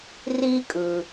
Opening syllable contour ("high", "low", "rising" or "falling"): high